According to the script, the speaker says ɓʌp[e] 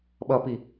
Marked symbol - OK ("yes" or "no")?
no